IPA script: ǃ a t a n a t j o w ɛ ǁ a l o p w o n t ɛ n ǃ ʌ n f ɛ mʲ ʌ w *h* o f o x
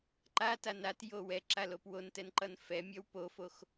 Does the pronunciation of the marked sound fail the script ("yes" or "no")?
yes